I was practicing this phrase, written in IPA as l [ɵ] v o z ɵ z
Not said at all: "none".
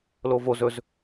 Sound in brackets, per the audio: o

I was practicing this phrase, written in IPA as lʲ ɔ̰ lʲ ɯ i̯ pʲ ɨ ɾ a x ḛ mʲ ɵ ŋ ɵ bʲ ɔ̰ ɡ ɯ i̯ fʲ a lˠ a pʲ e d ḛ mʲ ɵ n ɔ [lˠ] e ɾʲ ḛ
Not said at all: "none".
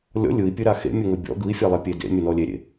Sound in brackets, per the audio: lʲ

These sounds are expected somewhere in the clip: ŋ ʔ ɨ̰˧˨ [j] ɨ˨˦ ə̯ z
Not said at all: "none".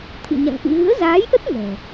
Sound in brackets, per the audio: ɣ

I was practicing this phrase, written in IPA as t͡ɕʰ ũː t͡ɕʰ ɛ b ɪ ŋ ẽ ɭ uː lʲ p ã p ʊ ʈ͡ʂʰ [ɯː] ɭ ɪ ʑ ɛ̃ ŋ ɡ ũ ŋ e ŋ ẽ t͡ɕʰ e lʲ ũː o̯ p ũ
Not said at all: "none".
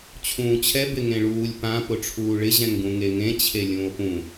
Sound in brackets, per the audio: uː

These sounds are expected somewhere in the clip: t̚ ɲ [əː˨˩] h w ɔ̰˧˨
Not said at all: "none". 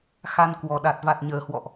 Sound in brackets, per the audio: əː˨˩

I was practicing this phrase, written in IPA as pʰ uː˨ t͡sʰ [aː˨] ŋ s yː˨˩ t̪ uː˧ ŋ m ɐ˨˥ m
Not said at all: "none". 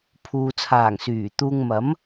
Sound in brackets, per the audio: aː˨˩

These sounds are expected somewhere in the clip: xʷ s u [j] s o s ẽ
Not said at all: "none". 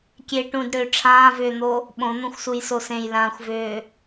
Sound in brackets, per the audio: j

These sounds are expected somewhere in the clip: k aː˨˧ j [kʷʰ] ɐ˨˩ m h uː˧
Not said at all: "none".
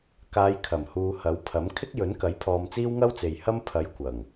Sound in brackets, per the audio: kʰ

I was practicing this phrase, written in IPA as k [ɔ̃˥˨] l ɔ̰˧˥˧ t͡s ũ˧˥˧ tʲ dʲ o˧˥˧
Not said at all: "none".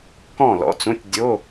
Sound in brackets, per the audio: ɔ̃˥˨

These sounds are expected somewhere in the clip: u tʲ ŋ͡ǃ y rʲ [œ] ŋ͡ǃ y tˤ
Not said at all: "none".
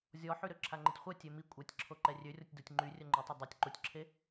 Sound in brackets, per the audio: œ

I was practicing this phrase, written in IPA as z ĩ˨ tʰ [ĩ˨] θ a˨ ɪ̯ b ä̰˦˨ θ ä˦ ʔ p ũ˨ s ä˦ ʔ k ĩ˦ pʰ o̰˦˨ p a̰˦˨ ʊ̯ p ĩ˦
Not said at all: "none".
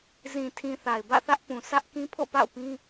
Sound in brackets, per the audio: ĩ˨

